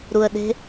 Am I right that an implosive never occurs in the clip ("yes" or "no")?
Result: no